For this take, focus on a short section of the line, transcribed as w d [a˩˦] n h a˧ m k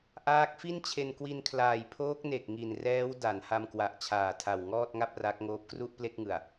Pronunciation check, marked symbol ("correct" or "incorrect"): correct